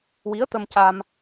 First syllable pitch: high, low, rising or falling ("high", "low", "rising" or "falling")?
rising